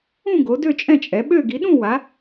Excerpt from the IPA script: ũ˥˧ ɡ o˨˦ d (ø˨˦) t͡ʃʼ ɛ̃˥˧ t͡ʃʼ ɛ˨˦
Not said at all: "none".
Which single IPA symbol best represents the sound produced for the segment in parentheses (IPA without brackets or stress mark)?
ø˥˧